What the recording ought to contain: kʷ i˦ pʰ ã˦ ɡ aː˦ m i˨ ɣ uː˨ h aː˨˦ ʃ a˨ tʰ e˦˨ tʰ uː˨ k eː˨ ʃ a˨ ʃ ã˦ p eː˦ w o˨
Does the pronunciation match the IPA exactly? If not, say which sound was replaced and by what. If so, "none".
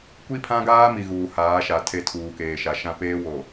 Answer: none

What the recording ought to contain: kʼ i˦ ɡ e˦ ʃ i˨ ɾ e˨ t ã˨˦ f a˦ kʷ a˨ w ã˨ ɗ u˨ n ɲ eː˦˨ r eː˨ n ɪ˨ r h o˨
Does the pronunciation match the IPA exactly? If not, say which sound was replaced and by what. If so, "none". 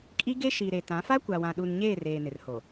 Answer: none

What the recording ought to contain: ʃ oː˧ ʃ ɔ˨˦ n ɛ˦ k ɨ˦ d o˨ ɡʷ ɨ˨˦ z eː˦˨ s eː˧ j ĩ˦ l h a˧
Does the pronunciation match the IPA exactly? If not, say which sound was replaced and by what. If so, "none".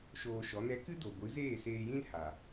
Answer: a˧ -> a˨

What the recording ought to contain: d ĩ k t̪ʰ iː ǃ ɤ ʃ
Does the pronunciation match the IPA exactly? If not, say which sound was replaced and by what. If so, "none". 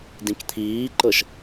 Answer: none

